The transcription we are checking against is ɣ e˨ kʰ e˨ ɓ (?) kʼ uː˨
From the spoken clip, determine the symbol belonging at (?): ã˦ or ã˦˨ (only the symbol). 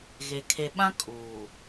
ã˦